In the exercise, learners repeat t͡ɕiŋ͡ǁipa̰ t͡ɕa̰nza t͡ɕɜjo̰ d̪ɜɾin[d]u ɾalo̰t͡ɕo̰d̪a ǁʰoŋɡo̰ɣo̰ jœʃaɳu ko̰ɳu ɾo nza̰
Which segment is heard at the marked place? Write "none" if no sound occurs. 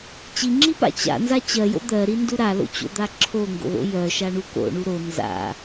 d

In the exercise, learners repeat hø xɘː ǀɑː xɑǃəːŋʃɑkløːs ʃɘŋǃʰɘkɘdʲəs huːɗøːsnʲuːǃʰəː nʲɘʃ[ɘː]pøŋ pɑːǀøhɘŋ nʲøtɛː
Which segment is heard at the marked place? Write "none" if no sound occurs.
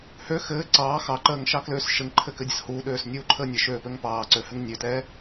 øː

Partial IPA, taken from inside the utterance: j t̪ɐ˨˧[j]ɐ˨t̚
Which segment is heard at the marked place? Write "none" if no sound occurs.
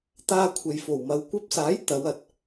w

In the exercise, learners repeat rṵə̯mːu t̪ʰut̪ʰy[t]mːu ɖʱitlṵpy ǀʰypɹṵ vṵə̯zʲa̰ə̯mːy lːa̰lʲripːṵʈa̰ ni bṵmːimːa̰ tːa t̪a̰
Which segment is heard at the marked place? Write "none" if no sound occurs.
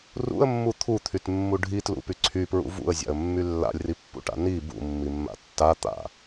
t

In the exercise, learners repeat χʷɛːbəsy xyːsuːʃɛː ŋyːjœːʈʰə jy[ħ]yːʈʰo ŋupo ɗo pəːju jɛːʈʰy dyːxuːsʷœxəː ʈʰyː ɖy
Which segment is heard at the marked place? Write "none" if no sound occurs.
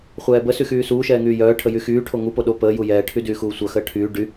x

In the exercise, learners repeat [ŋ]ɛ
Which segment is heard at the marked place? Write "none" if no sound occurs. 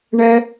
ɳ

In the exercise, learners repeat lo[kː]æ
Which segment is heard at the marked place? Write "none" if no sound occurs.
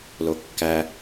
kː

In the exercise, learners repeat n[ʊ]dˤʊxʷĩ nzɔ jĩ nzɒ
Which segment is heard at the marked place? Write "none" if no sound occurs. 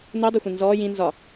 u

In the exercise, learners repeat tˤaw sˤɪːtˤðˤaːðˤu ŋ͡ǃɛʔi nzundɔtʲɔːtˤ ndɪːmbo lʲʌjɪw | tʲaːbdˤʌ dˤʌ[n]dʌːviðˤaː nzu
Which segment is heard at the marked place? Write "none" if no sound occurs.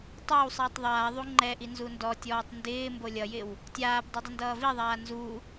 n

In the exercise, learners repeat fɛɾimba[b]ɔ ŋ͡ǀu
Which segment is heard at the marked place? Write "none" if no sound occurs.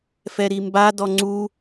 d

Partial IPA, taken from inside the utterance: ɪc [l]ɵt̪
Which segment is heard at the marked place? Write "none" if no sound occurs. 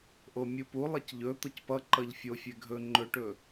ʎ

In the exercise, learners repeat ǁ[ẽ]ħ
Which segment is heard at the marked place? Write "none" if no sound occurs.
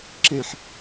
ẽ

